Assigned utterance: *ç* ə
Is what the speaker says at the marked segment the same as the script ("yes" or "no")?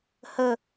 no